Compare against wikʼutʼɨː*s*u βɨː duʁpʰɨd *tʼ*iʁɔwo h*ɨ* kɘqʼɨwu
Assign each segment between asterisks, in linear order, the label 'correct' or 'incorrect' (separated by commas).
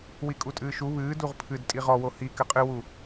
incorrect, correct, incorrect